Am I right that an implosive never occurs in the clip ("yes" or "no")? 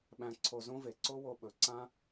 no